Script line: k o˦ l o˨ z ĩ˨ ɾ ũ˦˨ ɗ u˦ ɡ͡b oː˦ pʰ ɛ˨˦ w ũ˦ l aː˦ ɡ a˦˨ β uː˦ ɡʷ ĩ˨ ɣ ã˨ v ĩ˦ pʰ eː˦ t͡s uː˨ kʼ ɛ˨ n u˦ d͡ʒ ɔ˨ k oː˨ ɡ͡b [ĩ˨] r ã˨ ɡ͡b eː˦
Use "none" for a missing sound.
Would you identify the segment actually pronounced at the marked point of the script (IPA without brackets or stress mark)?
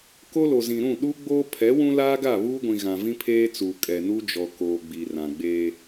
i˨